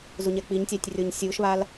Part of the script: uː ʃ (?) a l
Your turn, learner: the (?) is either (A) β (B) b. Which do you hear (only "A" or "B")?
A